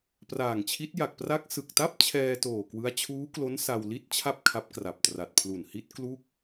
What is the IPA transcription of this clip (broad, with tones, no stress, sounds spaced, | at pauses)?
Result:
p r aː˨˩ ŋ t͡ɕʰ i˦˥ t̚ j a˨˩ k̚ p r a˦˥ k̚ s ɯ˨˩ k̚ t a˥˩ p̚ t͡ɕʰ ɛː˧ t oː˨˩ k w ɯ˦˥ a̯ t͡ɕʰ uː˦˥ k l o˦˥ n s a˧ w l i˥˩ t̚ t͡ɕʰ a˥˩ p̚ kʰ a˦˥ p̚ k r a˨˩ p̚ t r a˨˩ t̚ pʰ l u˨˩ n h i˦˥ t̚ k l u˥˩ k̚